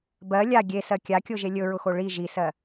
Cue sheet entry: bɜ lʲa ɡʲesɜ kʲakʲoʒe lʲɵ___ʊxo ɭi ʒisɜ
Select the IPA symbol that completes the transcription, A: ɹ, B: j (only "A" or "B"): A